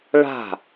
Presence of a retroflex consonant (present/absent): present